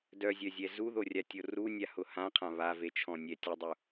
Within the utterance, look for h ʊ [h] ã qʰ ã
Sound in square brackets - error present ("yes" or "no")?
no